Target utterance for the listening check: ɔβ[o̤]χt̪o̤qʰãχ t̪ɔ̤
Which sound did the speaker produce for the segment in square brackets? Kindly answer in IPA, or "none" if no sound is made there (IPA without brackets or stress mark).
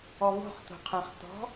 o̤